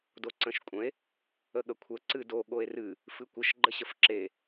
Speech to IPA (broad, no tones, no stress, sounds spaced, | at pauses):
d o ǀ ə̃ ʃ kʷʼ ə̃ e̯ | ə ɠ ə kʷʰ ə ǀ ɨ d o ɠ o e̯ r ɨ | f ɨ kʷ ə ʃ ɡ͡ǃ ə ɕ ə f ǁ e